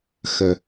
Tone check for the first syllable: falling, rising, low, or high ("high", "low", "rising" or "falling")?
low